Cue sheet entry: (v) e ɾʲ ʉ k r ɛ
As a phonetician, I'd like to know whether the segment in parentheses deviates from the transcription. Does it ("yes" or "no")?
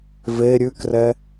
no